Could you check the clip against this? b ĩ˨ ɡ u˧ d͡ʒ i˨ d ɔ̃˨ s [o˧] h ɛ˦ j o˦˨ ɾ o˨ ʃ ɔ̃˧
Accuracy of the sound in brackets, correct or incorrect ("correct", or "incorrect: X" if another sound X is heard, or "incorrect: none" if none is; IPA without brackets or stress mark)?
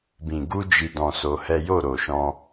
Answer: correct